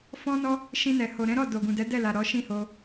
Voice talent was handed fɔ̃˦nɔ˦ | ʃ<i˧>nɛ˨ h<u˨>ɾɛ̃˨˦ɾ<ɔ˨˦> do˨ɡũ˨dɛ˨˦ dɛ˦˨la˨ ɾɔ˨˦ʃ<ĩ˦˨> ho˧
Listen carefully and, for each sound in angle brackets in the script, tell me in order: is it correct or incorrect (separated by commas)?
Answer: incorrect, incorrect, incorrect, correct